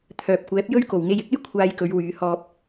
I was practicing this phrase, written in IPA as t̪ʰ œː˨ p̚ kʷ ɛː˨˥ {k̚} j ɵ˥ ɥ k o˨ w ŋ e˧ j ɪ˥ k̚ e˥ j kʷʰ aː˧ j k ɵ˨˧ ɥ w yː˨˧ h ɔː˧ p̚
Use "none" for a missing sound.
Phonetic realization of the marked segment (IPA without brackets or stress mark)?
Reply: p̚